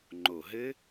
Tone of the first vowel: low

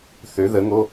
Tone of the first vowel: rising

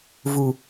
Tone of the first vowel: low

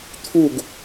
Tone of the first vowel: falling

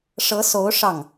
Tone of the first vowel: rising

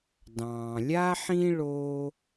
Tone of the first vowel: low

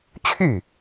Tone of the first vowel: falling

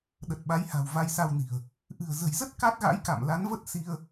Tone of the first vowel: low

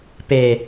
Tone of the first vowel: low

